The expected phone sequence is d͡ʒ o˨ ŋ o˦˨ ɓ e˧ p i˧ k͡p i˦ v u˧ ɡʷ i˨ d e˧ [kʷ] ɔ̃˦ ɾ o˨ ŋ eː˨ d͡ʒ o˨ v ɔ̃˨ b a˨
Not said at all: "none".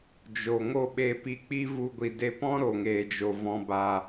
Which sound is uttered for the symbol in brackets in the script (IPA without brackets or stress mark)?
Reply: p